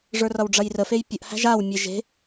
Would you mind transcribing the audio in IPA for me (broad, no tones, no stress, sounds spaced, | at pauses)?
ʐ ə˞ r ʌ w ɖ͡ʐ ɐ j r ə f e j pʲ ə ʔ h æ̤ ʒ a w mʲ e ʒ e̤